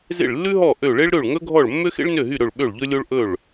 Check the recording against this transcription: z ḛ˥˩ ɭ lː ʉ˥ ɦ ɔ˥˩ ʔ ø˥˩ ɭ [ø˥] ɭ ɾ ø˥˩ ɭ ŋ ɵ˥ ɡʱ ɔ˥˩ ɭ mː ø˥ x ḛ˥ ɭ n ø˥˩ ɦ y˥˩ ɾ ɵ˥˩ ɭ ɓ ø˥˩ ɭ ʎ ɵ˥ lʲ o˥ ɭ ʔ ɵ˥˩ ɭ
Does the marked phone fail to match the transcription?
yes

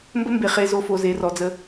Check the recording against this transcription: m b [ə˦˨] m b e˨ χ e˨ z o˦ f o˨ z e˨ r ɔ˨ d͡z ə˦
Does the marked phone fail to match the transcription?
yes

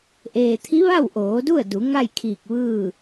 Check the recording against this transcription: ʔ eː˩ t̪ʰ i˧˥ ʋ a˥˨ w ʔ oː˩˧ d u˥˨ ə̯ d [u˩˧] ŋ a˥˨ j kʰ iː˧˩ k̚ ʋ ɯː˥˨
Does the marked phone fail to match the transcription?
no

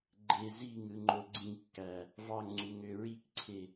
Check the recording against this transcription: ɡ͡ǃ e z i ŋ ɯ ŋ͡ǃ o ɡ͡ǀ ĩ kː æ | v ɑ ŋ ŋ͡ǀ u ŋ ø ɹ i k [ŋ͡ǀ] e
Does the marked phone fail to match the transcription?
yes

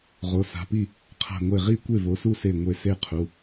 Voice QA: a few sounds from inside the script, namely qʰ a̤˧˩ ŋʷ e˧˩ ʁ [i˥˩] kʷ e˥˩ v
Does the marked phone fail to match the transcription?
no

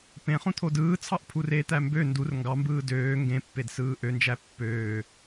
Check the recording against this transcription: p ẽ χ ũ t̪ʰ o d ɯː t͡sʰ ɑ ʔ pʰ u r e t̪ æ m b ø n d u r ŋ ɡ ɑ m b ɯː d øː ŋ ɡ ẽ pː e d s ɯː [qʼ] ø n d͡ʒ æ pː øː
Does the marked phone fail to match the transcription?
yes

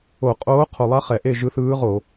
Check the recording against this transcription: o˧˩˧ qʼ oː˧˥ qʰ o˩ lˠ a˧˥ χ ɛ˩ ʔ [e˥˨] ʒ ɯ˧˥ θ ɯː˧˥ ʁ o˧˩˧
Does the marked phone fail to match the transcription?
no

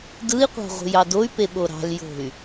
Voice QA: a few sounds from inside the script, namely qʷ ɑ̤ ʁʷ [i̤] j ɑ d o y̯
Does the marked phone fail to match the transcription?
no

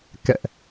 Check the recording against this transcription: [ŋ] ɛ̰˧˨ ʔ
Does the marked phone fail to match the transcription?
yes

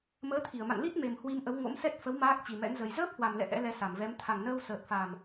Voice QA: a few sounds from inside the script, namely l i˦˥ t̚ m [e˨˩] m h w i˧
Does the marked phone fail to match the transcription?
no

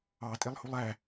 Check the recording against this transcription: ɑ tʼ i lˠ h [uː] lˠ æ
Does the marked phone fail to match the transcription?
yes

